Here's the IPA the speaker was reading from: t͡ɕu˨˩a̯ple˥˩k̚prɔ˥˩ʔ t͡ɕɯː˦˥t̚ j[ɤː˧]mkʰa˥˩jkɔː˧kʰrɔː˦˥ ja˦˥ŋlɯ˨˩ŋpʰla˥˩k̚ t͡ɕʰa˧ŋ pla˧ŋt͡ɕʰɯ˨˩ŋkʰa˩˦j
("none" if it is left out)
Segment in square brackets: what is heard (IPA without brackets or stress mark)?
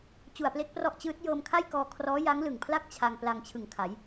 ɤː˧